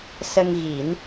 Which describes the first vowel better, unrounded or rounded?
unrounded